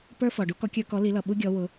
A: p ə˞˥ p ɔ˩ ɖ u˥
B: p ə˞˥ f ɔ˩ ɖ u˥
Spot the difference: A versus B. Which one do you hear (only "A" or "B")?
B